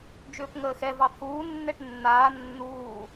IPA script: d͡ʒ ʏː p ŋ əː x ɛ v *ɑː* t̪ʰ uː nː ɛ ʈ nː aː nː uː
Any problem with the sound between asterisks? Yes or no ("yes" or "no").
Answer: yes